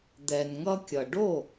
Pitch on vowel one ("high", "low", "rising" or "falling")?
low